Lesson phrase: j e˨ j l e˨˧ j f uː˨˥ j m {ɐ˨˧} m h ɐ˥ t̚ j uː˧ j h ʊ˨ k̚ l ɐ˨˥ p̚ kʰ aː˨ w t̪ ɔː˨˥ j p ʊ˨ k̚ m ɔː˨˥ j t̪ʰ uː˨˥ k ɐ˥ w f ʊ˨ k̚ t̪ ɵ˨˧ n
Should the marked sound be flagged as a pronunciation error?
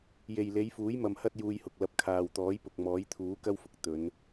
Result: yes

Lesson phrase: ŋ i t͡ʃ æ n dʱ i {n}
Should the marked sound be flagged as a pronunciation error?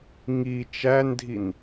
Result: no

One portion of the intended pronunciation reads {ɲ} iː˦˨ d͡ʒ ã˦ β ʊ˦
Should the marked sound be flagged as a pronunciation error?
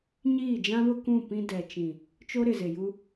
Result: no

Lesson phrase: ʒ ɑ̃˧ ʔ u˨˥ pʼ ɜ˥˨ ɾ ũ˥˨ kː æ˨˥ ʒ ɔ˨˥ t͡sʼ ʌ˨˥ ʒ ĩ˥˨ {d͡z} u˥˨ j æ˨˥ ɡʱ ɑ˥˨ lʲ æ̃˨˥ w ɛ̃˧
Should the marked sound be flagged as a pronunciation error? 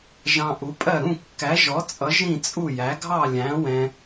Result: yes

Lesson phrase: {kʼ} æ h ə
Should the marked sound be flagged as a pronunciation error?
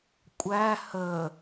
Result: yes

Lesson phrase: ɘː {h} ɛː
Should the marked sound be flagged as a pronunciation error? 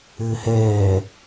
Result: no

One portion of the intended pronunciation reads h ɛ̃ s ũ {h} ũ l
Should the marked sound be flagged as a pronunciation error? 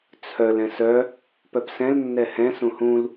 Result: no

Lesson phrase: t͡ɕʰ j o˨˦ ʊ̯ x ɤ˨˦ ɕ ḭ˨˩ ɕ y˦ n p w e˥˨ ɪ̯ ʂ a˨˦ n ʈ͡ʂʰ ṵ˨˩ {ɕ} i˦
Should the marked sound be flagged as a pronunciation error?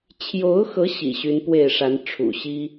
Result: no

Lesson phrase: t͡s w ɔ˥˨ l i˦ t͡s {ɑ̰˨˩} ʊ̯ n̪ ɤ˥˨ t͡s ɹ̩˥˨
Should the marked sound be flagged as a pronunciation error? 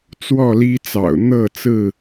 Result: no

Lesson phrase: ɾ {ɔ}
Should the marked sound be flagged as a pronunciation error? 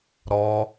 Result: no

